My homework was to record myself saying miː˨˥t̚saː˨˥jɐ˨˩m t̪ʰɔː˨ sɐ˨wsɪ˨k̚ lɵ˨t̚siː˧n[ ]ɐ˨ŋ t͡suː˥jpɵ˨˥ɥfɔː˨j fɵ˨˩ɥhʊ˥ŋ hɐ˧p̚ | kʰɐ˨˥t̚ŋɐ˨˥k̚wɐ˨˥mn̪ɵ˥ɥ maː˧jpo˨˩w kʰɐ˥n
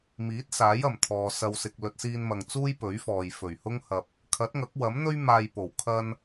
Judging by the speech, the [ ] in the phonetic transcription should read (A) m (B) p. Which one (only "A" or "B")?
A